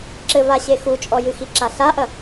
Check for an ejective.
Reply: present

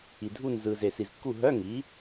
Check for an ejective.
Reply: absent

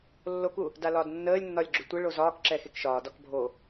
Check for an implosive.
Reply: absent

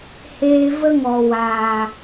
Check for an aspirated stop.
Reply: absent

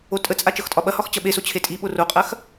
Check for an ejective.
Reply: present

